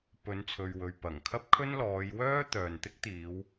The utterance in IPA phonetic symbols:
p ɵ˨˧ n t͡sʰ ɵ˨ ɥ w ɵ˨ ɥ p ɐ˨˩ ŋ kʰ ɐ˥ p̚ kʰ ɵ˥ n l ɔː˨˧ j w œː˥ t̪ œː˨ n t̪ ɪ˥ k̚ t̪ iː˨˧ w

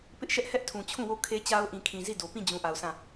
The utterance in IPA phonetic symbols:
p ɪ˦ ʔ ʃ ɛ˦ ʔ h ɛ˦ ʔ tʰ ũ˨ t͡ɕʰ ũ˦˨ w o˦˨ kʰ e˦ t͡ɕ a˦ ʊ̯ ʔ ĩ˨ kʰ ĩ˨ z i˦˨ d o˨ p ĩ˦˨ d͡ʑ ũ˨ ʔ a˨ ʊ̯ sʰ ã˦˨

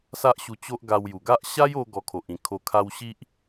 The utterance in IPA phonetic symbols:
s a˦ ʔ ɕ u˧ t͡ɕ o˦ ʔ ɡ a˧ w j u˨˩ ɡ a˦ ʔ ɕ a˦ j o˦ ɡ ɔ˧ kʰ o˨ ʔ ĩ˨˩ kʰ o˨˩ kʰ a˧ w ɕ i˦ ʔ

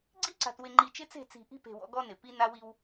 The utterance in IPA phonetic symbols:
ɡ͡ǀ i˦ ǀ a̤˨ t w ɪ˨ ŋ͡ǃ i˨ t͡ʃ ɪ˦ t͡s e̤˦˨ t͡s i̤˨ ʔ i̤˦ p e̤˨ w ɔ̰˦ ɡ ɔ˦ n ɪ˨ p i˦ n a˦ w i˦ w

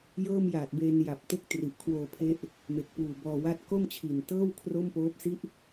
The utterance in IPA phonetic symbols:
j ɤː˥˩ m j aː˨˩ t̚ b eː˧ n j a˨˩ p̚ t e˥˩ k̚ t r i˨˩ ʔ kʰ w oː˧ pʰ e˦˥ ʔ | m e˨˩ k̚ p uː˨˩ b ɔː˧ w a˥˩ t̚ k o˥˩ m t͡ɕʰ i˨˩ n t ɤː˥˩ w kʰ r o˥˩ m p oː˦˥ p̚ s i˥˩ ʔ

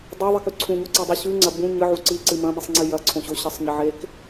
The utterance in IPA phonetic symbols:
dˤ ɵ ðˤ i k ʉ ǀʰ ũ ɲ o ǀ i dˤ u ɕ ʉ ŋ͡ǀ ɐ b ũ ɲ ɨ ʕ u ǀ i ǀ ɨ m ɐ̃ m i sˤ ŋ͡ǀ i j ɐ ǀʰ õ ɕ o ɕ ɐ sˤ ɲ ɐ ʕ e k

